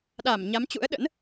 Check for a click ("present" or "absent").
absent